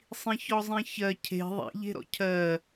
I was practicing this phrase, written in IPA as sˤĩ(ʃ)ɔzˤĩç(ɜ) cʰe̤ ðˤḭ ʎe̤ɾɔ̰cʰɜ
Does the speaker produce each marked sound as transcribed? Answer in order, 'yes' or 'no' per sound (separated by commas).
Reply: no, yes